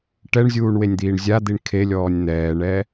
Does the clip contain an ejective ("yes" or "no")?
no